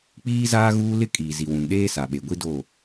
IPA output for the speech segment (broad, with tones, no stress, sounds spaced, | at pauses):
k͡p iː˦ z aː˦ ɣ uː˦ l ɪ˦ kʼ iː˨ z i˨ w ũ˨ n ɗ eː˦ s a˨ ɓ e˨ ɡʷ i˦ d o˦˨